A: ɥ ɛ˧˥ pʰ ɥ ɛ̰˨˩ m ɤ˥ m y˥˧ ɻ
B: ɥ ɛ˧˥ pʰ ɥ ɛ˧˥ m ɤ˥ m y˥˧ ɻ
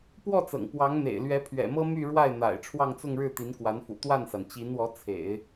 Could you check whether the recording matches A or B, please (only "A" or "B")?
A